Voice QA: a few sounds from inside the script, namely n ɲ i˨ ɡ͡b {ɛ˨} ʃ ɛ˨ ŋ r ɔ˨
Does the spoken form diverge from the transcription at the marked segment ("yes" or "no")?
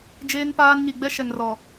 yes